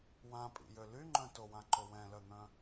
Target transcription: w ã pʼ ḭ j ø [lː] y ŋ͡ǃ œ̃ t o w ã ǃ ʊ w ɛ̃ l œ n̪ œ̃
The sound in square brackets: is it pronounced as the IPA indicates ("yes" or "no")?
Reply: no